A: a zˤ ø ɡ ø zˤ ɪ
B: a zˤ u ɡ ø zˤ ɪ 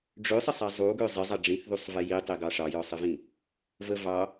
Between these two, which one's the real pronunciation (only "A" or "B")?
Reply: B